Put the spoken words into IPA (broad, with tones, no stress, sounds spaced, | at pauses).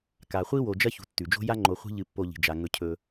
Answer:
k a˨ χʷ i˥ w o˨ d͡ʒ ɐ˥ ç ṳ˨ tː ʉ˩ d͡ʒ o̤˥ j a˥ ŋ͡ǃ o˨ χʷ i̤˦ ʎ ɨ˨ pː o˨ ʎ i̤˩ d͡ʒ a˩ ŋ ɵ˨ cʰ ɵ˨